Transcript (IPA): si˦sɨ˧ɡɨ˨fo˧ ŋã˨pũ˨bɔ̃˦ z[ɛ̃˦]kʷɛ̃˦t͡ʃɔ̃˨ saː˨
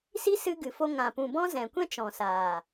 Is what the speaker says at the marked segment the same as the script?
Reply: no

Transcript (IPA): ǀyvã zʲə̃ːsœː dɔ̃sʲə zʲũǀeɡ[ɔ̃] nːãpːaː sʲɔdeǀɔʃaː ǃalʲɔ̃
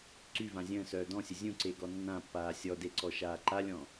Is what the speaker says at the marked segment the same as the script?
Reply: no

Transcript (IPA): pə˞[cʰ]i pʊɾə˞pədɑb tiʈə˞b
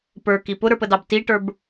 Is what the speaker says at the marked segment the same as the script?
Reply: no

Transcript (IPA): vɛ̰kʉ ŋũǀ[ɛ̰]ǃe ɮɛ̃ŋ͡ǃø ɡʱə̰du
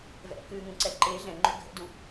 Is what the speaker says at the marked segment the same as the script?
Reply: no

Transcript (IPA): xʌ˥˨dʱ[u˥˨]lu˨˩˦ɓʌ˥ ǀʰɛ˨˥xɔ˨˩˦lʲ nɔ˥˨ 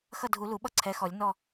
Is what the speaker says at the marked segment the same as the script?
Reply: no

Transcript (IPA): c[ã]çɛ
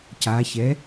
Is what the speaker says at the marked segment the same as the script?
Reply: no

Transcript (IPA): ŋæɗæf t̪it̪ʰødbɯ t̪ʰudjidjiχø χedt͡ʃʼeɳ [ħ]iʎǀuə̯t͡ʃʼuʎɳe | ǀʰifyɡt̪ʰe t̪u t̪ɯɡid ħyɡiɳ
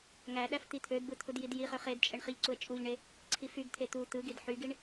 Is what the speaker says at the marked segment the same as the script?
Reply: no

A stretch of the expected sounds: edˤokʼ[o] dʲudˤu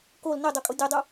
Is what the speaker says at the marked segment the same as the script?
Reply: yes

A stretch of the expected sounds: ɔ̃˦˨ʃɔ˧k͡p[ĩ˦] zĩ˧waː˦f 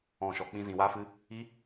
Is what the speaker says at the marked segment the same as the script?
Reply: yes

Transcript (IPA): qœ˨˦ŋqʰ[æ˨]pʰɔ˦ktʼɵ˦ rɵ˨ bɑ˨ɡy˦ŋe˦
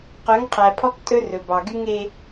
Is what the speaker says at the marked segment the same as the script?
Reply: yes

